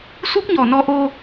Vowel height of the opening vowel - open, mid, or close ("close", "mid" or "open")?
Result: close